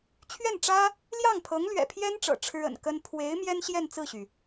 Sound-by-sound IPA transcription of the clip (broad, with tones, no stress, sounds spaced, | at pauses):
t͡ɕʰ ɥ ɛ˥˩ n ʈ͡ʂ ä˥ | l j ɑ˥˩ ŋ pʰ ɤ˧˥ ŋ l ɥ ɛ̰˨˩ pʰ j ɛ˥ n ʈ͡ʂ ɤ̰˨˩ ʈ͡ʂʰ ɻ̩˥ ə̰˨˩ n k ə˥ n pʰ w e˧˥ ɪ̯ m j ɛ˥ n ɕ j ɛ˥˧ n t͡s ɹ̩˥˩ ɕ y˩